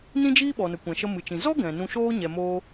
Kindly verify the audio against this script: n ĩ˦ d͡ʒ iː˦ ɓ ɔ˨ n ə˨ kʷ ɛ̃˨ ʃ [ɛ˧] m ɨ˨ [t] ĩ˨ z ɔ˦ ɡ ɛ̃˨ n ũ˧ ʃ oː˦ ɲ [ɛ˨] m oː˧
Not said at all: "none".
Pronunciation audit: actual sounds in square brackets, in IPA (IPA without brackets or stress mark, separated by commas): ə˧, t͡ʃ, ɛ˨